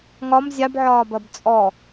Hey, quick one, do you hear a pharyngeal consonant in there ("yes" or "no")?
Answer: yes